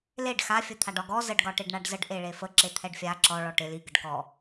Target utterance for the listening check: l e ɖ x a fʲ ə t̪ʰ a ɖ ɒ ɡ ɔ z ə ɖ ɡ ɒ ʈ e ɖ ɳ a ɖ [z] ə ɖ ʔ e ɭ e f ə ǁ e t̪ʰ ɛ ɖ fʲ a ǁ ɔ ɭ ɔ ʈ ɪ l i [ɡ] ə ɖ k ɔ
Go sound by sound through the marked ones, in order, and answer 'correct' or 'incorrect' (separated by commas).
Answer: correct, correct